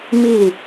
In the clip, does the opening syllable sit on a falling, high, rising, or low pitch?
falling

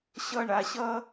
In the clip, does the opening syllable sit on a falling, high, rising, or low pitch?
falling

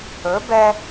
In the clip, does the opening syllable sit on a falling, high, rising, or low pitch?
rising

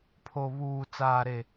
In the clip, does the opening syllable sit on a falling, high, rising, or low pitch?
low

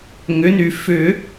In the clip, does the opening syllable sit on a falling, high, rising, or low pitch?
rising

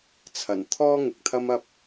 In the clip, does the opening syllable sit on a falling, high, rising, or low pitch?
low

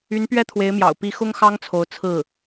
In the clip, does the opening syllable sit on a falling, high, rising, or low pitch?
rising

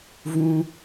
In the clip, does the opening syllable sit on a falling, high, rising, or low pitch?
high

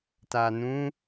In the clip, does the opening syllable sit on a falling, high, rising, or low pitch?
low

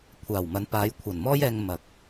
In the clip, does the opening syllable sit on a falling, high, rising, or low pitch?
low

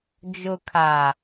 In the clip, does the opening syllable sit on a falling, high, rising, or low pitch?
low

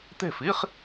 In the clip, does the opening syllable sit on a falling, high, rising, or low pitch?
falling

